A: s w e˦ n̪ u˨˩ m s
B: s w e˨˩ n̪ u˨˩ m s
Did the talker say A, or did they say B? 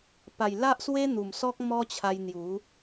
A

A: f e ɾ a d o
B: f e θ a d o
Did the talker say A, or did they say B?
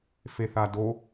B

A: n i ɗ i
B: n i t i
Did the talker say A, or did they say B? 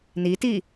B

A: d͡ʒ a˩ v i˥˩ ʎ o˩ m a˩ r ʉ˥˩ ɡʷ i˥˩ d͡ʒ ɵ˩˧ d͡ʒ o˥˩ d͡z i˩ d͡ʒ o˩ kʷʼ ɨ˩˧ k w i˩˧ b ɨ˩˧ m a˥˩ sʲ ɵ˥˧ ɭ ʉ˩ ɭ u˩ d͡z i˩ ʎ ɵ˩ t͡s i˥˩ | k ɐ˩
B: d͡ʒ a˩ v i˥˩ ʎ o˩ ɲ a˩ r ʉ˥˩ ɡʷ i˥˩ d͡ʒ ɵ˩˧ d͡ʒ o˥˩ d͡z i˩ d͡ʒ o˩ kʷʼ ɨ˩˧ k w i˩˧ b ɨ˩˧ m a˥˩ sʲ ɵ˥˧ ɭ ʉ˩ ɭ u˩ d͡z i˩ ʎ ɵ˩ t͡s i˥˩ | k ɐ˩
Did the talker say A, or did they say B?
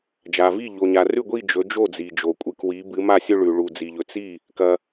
B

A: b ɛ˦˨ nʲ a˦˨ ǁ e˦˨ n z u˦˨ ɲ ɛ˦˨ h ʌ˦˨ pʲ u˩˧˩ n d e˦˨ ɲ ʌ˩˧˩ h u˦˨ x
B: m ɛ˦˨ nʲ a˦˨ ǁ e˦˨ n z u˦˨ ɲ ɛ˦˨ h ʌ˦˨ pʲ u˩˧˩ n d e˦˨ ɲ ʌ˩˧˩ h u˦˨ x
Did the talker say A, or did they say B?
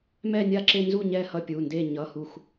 B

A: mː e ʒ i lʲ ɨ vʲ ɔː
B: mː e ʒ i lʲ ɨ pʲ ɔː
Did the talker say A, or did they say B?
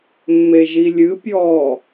B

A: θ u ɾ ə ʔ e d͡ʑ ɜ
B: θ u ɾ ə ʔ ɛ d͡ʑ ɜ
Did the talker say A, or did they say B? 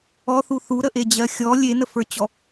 A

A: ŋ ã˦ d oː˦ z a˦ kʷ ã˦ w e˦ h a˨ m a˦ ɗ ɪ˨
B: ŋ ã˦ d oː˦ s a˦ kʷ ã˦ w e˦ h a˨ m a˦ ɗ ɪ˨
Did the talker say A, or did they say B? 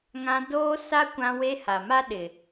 B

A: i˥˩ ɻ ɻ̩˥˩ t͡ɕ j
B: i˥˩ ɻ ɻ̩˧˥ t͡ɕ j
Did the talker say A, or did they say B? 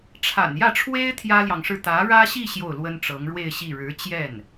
B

